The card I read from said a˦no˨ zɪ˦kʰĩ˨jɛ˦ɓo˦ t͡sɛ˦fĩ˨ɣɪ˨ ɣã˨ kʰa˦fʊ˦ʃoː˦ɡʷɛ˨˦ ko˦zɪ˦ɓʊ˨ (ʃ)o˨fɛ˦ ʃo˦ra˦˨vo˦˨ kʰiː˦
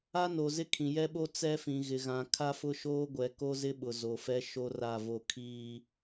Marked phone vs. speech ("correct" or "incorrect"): incorrect